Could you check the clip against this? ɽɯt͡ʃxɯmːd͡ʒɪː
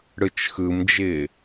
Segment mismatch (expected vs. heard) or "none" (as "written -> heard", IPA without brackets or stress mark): mː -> m